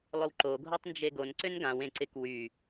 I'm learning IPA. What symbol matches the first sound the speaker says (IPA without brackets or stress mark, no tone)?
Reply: lˠ